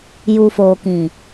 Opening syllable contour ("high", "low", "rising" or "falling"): low